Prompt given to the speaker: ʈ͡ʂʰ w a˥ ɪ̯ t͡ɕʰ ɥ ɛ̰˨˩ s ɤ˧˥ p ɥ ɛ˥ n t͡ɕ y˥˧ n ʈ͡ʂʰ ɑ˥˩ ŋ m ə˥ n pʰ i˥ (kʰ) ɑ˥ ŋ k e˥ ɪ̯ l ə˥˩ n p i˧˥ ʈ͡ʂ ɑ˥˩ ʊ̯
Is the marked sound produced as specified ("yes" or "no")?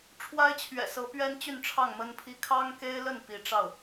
yes